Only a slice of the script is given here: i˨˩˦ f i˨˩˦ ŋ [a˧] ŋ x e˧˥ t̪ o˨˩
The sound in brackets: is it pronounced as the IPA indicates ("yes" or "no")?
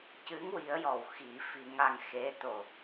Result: yes